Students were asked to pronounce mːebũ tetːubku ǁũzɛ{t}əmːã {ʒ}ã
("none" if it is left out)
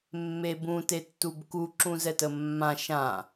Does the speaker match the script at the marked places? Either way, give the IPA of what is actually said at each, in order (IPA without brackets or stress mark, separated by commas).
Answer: t, ʃ